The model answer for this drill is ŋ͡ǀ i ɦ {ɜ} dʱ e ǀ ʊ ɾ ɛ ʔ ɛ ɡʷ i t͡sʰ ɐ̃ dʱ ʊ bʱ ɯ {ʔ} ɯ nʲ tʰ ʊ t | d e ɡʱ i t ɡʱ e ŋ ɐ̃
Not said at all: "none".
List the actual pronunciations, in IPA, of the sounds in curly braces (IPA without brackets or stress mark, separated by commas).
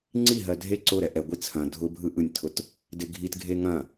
ɜ, ʔ